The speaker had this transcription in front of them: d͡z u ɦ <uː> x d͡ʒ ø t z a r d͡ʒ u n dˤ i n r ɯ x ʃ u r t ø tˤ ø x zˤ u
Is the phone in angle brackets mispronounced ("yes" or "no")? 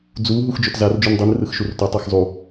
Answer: yes